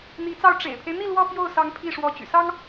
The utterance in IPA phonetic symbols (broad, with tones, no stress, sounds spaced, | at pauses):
n̪ i˧˥ t͡s ɑ˥˩ ʊ̯ ʈ͡ʂ ḛ˨˩ ɪ̯ pʰ e˦ ɪ̯ n̪ i˥˧ l w ɔ˥˧ p j o˥˩ ʊ̯ s ɑ˧˥ ŋ pʰ i˥˩ ʂ w ɔ˧˥ t͡ɕ y̰˨˩ s ɑ˥ ŋ